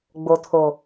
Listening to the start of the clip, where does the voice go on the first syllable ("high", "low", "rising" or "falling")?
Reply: low